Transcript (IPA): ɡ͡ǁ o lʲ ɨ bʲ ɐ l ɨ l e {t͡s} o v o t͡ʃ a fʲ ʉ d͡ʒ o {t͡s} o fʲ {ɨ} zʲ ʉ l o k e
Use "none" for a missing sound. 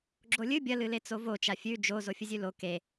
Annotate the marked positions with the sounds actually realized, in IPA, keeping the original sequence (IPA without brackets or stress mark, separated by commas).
t͡s, z, ɨ